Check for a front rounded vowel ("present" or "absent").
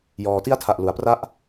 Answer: absent